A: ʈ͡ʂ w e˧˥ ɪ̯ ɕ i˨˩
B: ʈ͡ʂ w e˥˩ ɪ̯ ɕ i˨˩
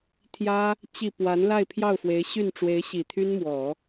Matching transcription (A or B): A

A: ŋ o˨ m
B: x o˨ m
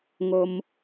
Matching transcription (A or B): A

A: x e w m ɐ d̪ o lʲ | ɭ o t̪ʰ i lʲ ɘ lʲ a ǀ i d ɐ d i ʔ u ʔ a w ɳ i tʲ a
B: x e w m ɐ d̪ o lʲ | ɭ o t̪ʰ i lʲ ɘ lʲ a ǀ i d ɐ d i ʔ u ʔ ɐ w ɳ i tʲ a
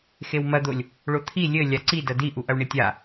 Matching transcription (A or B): B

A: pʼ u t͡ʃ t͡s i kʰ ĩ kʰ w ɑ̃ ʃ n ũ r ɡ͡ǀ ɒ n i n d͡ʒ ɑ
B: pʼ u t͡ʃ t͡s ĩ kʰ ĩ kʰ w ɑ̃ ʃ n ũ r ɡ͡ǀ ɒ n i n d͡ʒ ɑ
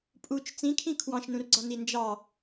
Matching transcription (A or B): B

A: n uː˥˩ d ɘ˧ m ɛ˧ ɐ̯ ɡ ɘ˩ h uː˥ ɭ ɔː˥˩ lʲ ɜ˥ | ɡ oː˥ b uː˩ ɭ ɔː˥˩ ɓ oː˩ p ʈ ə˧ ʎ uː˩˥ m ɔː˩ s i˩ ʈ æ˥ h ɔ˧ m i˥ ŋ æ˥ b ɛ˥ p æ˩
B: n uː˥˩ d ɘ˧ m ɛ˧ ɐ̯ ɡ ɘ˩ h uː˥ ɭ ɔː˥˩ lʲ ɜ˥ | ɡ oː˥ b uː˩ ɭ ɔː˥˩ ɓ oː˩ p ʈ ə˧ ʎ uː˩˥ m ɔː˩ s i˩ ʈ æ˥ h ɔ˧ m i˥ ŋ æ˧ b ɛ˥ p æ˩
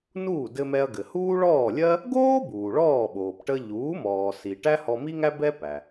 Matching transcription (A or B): A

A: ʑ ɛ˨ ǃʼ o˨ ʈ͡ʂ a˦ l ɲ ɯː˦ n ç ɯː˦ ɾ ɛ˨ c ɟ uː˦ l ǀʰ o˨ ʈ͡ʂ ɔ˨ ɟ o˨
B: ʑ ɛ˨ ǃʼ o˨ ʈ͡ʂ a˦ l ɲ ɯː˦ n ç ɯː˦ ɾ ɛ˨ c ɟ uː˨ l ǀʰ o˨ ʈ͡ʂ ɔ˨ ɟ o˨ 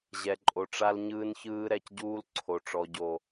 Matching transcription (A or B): A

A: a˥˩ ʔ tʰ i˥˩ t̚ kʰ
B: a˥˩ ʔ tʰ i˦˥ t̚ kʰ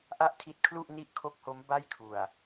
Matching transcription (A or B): B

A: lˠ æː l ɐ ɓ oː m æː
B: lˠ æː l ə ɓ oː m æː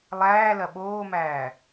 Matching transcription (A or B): A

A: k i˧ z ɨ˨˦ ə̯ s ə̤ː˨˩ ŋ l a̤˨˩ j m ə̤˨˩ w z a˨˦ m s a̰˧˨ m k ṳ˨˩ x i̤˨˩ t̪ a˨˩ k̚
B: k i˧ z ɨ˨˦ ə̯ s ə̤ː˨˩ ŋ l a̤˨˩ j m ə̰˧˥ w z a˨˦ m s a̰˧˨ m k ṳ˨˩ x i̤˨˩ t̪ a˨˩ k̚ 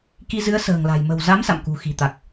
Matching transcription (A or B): A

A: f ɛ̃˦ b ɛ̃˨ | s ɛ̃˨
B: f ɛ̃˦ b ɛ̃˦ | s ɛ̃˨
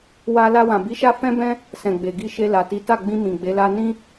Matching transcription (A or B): B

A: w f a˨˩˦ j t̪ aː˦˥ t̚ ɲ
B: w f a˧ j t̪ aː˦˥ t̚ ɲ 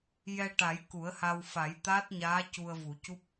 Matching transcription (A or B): A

